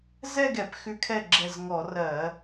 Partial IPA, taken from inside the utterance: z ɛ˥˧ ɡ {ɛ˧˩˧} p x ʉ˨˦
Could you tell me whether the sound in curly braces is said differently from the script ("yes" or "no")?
no